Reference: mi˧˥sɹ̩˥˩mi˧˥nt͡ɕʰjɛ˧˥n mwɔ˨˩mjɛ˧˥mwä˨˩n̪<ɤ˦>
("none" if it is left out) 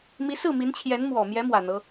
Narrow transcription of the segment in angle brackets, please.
ɤ˦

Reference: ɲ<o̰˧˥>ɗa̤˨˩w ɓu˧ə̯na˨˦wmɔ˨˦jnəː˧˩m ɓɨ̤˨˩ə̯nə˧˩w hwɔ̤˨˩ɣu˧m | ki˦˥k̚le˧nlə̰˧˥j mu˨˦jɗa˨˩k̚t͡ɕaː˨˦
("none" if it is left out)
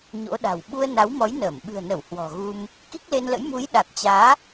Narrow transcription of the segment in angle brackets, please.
o̰˧˥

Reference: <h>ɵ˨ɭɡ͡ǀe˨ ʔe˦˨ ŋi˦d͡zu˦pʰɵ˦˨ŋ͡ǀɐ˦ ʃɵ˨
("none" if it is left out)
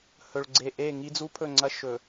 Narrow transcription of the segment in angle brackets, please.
h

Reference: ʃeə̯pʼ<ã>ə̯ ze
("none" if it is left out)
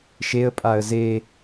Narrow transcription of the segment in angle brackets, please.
a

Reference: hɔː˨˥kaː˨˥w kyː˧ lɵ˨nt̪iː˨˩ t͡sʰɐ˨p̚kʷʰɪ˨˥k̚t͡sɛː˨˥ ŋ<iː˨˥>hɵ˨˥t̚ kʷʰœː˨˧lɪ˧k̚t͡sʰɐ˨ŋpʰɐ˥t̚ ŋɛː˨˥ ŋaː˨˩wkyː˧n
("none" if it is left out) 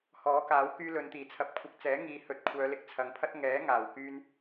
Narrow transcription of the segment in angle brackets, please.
iː˨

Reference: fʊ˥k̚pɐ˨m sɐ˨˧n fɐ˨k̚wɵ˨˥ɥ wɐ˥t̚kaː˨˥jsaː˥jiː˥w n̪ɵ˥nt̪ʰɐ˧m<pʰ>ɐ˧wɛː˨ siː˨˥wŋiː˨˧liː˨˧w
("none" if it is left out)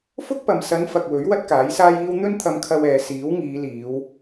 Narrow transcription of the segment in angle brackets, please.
kʰ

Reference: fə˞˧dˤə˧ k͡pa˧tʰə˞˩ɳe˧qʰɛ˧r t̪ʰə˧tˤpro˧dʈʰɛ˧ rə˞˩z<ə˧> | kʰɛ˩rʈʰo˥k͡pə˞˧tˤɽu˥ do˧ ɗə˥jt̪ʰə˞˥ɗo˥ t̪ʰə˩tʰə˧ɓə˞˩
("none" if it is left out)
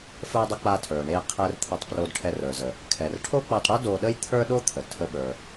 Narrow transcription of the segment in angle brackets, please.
ə˩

